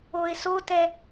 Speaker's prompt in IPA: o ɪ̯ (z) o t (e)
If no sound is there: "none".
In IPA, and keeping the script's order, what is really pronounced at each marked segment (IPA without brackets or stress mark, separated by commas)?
s, ɛ